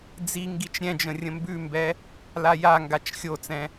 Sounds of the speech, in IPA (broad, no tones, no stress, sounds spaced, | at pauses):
d͡z i ŋ ɡ i t͡ʃ ɾʲ ɛ̃ d͡ʒ ə̃ rʲ ə̃ m b ʉ m b ɛ | l a j a ŋ ɡ a t͡ʃ xʲ o t͡s ɛ̃